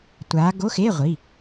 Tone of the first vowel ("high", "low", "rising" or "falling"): rising